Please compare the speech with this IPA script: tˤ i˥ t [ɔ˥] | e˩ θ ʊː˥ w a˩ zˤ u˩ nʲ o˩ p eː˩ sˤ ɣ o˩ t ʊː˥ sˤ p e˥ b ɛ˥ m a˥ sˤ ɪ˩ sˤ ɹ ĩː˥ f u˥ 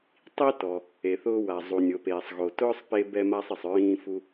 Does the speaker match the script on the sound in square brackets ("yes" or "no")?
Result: no